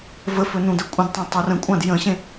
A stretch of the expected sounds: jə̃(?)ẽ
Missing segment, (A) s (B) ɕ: B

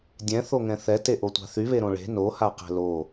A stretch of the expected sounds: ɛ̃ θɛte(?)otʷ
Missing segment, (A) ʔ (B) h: A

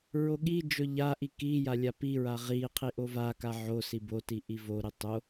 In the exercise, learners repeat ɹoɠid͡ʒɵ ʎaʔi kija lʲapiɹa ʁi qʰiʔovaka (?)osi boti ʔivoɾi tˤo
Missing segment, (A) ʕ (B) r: A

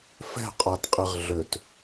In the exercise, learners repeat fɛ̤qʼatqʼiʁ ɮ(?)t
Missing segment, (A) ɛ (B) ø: B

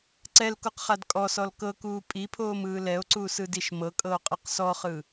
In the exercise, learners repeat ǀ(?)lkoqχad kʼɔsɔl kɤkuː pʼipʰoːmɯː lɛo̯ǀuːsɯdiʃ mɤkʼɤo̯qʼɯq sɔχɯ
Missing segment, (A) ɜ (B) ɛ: B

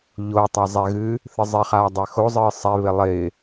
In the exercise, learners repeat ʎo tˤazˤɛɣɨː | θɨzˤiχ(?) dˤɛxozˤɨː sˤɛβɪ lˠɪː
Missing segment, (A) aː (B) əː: A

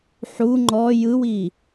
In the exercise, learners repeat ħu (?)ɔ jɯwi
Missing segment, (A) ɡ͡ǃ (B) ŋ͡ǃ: B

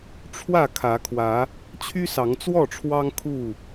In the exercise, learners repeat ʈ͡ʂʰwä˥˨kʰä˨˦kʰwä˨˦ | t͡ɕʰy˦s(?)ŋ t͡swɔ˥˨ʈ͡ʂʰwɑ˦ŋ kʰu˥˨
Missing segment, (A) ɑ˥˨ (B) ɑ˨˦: B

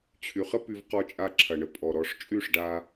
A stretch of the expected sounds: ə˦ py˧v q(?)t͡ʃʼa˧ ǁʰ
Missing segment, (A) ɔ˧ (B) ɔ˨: A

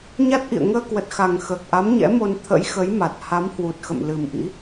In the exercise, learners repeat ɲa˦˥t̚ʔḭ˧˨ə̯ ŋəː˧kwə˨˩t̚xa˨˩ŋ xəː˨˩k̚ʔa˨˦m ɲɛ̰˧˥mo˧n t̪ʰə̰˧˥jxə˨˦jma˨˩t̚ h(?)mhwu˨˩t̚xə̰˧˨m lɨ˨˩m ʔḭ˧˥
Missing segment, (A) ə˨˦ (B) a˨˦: B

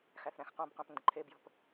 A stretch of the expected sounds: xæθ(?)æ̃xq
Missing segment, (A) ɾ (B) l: A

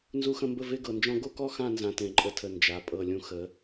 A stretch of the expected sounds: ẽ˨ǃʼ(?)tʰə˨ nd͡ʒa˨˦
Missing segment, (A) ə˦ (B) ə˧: B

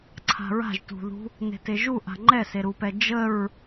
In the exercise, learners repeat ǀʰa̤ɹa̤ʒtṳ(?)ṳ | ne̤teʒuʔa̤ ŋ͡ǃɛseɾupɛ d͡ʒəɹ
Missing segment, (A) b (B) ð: B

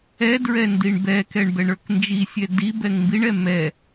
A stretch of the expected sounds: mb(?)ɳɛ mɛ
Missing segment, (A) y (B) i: B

